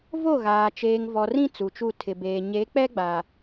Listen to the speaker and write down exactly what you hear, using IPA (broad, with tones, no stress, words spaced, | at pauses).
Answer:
vo˦˨ɣaː˨ t͡ʃeː˨ŋvɔ˨rĩ˦ t͡su˨t͡ʃu˦˨ tʰɪ˨beː˨ ɲe˨˦k͡pɛ˦ɡ͡ba˨